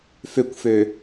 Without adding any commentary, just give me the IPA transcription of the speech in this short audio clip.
føkʷfø

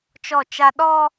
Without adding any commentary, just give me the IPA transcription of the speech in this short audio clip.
t͡ʃɔ˦˨t͡ʃa˦ ɗɔ˦

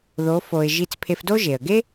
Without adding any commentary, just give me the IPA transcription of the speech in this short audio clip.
ðo˧˥fo˧ɪ̯ ʒi˧t͡spʰe˧fdo˥ ʒe˩ə̯ɡe˥

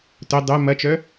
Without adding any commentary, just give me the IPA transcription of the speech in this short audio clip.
tʊ dˤo mɐt͡ʃœ

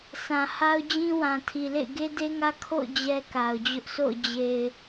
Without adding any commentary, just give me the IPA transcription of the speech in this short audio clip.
sʰã˨ha˦ʊ̯d͡ʑĩ˦ wã˨tʰi˨lḛ˦˨ɪ̯ ɡe˦de˦ŋä˦ kʰo̰˦˨ʊ̯ d͡ʑɛ˦ka˨ʊ̯d͡ʑʊ˦ʔ so̰˦˨ʊ̯ d͡ʑe˨ɪ̯

